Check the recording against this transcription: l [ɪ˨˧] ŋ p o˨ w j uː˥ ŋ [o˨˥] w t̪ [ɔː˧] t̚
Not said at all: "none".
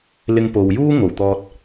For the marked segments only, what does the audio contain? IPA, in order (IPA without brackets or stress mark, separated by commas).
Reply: ɪ˧, o˨˩, ɔː˧